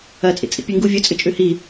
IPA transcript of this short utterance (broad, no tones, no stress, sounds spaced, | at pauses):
ɐ t͡sʼ ḭ t͡sʼ ḭ pʲ ʉ ŋ ɡ u vʲ ɵ t͡sʼ ɨ t͡ʃʼ ʉ h i